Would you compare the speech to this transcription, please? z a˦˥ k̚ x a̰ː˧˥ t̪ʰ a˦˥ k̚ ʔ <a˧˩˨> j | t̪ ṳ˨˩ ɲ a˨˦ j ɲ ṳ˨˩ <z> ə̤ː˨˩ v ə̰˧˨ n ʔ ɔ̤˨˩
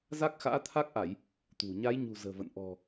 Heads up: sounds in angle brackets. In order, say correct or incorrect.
correct, correct

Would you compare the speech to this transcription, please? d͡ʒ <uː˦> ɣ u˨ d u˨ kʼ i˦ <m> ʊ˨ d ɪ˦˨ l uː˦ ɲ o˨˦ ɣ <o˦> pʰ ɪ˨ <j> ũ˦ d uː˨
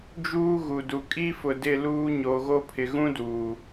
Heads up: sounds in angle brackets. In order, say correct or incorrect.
correct, incorrect: f, correct, incorrect: ɣ

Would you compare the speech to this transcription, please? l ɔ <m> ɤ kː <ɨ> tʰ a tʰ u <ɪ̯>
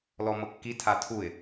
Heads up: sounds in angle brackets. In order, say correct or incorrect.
correct, incorrect: i, correct

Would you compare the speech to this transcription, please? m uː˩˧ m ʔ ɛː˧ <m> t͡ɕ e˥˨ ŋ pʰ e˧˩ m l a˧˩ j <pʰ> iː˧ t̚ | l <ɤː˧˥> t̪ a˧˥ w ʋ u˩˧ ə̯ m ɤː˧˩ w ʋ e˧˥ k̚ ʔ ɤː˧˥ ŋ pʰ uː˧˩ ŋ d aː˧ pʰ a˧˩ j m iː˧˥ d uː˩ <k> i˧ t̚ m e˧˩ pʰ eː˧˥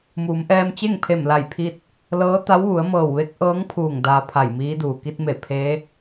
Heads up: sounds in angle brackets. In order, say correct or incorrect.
correct, correct, correct, correct

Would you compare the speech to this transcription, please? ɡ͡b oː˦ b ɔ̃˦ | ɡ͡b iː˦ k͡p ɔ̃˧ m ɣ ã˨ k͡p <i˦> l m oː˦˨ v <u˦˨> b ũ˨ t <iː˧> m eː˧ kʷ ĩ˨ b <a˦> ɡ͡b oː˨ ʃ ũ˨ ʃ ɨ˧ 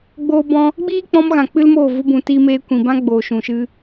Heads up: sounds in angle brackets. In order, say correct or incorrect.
incorrect: ɨ˦, incorrect: u˧, correct, incorrect: ã˦

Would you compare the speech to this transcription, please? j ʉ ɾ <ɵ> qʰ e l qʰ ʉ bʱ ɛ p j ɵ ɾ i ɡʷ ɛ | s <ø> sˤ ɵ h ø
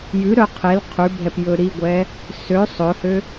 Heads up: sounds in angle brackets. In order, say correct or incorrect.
incorrect: œ, correct

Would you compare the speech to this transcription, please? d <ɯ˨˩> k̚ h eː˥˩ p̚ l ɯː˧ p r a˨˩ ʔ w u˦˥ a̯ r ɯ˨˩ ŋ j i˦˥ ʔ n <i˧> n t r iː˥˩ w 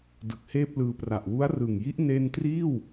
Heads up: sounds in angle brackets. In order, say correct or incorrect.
correct, incorrect: e˧

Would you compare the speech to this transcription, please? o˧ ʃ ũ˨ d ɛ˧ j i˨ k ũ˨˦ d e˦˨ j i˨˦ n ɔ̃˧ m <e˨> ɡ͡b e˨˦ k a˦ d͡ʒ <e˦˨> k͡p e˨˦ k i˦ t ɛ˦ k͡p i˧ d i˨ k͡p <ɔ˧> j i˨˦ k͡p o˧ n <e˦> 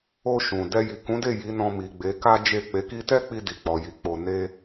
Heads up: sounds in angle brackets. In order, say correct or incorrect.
incorrect: i˨, correct, incorrect: ɔ˨, correct

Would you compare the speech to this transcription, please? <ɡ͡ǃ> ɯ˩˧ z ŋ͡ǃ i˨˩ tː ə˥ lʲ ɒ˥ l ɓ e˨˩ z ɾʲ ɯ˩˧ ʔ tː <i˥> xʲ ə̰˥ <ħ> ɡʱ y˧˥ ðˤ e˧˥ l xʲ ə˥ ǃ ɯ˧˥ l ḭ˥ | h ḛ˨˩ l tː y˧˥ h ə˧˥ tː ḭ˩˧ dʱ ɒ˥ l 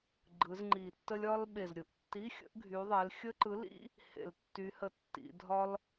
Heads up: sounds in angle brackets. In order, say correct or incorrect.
correct, incorrect: i˧˥˧, incorrect: ʔ

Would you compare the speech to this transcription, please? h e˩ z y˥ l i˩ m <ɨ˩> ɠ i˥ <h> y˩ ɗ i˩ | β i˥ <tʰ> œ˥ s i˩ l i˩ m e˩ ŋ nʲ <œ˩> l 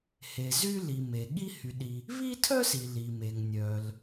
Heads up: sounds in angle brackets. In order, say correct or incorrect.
incorrect: e˩, correct, correct, correct

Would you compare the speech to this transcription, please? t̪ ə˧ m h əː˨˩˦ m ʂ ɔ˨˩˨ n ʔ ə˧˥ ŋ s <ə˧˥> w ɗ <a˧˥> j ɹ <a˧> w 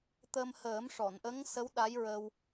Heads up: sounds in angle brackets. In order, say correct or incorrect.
correct, correct, incorrect: ə˧

